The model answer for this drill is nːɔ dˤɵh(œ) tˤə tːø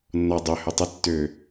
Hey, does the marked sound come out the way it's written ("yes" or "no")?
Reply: no